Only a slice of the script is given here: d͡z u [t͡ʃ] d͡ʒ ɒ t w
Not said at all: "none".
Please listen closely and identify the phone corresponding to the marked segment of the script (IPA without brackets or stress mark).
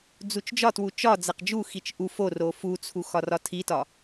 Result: t͡ʃ